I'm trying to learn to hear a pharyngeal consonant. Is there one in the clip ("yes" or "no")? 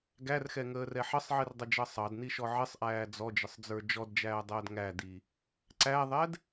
yes